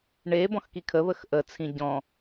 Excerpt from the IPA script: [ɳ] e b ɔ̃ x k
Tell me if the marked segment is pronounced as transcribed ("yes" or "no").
yes